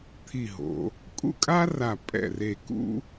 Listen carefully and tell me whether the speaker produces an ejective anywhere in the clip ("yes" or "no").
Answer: yes